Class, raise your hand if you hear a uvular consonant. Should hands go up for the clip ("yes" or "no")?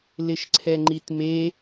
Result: no